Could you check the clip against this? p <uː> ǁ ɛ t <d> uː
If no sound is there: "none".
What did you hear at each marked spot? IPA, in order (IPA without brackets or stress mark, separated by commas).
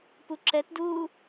u, d